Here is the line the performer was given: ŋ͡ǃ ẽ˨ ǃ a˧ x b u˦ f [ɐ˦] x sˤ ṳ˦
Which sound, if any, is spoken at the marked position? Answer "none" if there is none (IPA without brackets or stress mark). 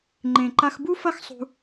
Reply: ɐ˦